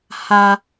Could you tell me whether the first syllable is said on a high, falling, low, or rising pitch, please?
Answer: high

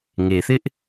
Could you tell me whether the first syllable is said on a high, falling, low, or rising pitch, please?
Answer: low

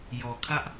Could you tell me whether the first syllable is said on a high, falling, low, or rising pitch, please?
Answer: low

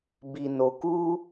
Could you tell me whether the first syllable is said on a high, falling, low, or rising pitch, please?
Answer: low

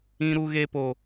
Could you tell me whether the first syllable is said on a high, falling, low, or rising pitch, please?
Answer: high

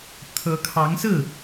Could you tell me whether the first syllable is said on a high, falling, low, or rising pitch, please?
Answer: rising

